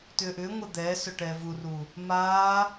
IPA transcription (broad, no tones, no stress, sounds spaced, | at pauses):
t ʏː ʔ ʏː ŋʷ ɛ d̪ ɛː s œ ʈ ɛː v u r u | m aː